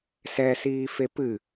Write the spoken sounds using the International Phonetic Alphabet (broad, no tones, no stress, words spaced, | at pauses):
sɛsiːfe pɨ